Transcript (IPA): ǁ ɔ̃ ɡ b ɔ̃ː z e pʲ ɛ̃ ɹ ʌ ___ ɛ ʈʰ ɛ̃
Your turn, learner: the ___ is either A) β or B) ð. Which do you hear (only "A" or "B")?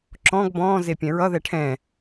B